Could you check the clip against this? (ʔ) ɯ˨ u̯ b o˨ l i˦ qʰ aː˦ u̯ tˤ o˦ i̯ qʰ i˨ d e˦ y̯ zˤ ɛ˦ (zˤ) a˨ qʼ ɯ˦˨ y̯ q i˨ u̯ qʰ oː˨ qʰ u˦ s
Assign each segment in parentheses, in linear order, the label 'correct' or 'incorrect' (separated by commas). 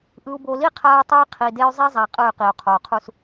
correct, correct